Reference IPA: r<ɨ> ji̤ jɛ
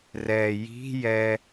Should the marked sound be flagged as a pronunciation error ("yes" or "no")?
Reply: yes